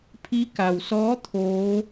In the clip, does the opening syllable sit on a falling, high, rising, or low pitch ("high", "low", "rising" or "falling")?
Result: rising